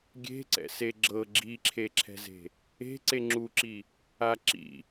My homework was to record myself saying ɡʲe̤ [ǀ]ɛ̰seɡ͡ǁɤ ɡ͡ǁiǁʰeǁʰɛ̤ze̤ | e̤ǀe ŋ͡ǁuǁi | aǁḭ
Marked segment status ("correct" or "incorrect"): correct